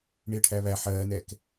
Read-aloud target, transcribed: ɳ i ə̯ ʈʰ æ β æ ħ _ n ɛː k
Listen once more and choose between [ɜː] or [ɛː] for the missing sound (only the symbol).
ɜː